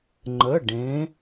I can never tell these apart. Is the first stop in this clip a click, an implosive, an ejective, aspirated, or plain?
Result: click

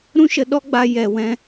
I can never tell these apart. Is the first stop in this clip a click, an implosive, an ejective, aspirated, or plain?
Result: implosive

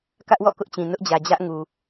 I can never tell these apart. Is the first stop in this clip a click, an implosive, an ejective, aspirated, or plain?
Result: plain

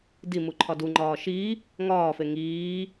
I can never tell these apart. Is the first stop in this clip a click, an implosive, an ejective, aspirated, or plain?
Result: plain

